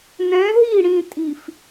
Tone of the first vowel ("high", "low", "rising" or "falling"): rising